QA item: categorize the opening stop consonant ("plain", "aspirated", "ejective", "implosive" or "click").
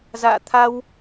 aspirated